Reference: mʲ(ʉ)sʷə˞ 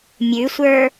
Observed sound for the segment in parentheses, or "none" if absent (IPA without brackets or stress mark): ʉ